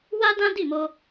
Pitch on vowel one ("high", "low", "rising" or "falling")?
high